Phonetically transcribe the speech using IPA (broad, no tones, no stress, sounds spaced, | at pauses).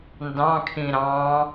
n d ɑ̃ kʰ ĩ ɾ ɑ̃